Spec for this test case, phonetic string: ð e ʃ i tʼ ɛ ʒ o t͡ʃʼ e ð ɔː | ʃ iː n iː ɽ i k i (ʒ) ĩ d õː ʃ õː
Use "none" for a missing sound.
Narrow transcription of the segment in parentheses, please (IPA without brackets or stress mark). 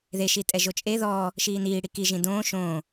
ʒ